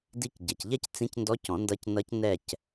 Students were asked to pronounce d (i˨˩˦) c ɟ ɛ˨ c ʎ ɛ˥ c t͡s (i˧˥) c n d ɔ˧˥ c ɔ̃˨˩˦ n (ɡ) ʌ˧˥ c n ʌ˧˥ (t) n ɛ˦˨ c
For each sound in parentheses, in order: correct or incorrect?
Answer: incorrect, incorrect, incorrect, incorrect

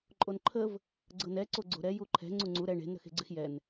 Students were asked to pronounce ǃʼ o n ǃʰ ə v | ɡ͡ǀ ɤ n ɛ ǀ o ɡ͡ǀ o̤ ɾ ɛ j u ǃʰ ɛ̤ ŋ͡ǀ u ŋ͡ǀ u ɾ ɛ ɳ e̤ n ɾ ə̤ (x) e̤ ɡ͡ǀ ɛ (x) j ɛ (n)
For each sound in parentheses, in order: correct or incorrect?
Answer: correct, correct, correct

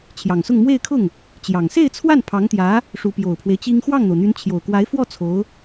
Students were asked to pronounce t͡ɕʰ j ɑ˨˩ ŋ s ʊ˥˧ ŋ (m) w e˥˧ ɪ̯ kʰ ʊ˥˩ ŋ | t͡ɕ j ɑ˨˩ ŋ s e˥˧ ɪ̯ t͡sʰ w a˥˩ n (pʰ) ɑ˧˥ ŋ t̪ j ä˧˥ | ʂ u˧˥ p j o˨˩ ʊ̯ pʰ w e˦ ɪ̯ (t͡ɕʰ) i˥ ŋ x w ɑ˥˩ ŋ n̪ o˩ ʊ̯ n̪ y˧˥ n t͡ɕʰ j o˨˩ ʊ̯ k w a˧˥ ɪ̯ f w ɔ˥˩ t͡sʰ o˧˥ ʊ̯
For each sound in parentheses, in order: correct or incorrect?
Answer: correct, correct, incorrect

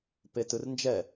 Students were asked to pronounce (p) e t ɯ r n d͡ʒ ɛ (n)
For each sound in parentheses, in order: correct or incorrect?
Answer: correct, incorrect

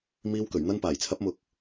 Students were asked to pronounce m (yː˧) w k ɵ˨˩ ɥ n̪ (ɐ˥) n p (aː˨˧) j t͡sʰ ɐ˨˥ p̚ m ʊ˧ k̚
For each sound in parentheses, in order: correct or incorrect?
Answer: incorrect, incorrect, incorrect

